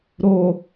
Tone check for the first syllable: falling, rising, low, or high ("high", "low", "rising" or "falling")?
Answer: low